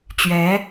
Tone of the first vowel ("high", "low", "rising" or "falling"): rising